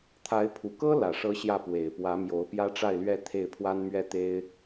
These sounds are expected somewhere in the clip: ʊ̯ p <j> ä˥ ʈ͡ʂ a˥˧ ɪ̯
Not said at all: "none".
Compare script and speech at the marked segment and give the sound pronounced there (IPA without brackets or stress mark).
j